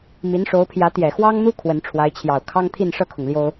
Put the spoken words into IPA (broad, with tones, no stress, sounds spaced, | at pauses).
m i˧˥ n ʂ o˧˥ ʊ̯ pʰ j ä˧˥ t̪ j ɛ˨˩ x w ɑ˥ ŋ n̪ u˥ kʰ w ə˧˥ n ʈ͡ʂʰ w a˧˥ ɪ̯ t͡ɕʰ j ɑ˨˩ ʊ̯ kʰ ɑ˥ ŋ t̪ʰ i˥˧ n ʂ ɤ˥˩ kʰ ʊ˩ ŋ l j o˥ ʊ̯